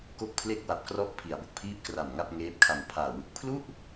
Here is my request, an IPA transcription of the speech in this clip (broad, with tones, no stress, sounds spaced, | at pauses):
k o˥˩ k̚ pʰ l e˥˩ k̚ w a˨˩ p̚ k r ɔ˦˥ ʔ pʰ i˩˦ a̯ b o˨˩ k̚ pʰ iː˥˩ p̚ k r a˨˩ m ŋ a˥˩ p̚ ŋ eː˦˥ p̚ kʰ a˧ m pʰ aː˨˩ w ɯ˨˩ k̚ pʰ l u˥˩ ʔ